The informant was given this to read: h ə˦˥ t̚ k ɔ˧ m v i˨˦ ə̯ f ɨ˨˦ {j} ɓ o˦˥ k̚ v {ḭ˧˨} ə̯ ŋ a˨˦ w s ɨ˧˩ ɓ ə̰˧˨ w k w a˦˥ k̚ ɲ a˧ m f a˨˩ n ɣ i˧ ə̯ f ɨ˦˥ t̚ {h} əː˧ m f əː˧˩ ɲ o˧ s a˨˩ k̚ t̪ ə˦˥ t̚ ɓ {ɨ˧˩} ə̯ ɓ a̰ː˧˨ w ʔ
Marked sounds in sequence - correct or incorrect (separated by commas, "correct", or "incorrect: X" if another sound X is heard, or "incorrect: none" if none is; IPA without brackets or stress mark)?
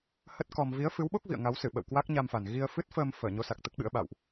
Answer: incorrect: w, correct, incorrect: f, incorrect: ɨ̰˧˥